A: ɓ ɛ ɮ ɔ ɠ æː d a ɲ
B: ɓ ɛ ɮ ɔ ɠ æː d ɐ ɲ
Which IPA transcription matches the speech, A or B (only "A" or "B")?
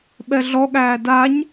A